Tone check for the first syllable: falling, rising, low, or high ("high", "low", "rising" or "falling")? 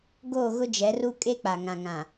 falling